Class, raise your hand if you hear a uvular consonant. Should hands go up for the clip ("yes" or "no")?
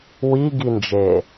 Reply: no